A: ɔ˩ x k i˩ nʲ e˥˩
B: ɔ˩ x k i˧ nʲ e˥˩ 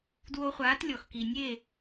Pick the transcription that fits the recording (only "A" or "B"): A